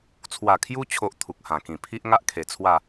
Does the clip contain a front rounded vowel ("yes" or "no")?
no